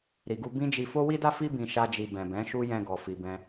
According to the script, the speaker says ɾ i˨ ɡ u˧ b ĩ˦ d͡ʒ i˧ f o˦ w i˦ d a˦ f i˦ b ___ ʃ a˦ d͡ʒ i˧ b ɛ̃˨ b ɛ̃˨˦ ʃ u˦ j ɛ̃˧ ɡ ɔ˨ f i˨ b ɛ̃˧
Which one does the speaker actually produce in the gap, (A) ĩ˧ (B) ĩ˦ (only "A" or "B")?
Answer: A